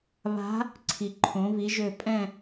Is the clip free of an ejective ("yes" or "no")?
no